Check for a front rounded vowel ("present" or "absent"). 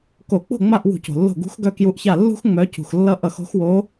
present